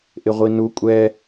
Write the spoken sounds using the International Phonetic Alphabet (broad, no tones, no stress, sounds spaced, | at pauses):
ʔ ɪ ʁʷ i n u kʷʼ ɛ